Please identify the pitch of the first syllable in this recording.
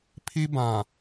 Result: high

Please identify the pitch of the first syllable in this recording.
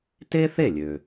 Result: high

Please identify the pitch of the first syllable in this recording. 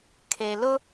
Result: low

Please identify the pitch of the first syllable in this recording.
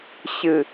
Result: low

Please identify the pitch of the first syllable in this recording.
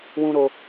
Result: high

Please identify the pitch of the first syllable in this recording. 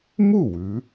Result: falling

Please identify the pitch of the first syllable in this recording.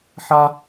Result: high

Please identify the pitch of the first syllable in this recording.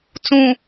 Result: low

